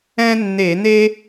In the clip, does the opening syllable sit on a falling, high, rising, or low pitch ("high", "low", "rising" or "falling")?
high